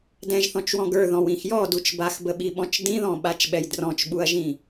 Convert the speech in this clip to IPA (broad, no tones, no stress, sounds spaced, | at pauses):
d ɛ̃ ʒ θ ɔ̃ t͡ʃ w ɔ̃ ɡ ə˞ ð ɔ̃ w ĩ x j ɔ d u t͡ʃ b a x b ə ɓ i ɓ ɔ̃ t͡ʃ d ĩ ð ɔ̃ ɓ a t͡ʃ ɓ ɛ j d r ɔ̃ t͡ʃ ɓ u ɐ̯ ʒ ĩ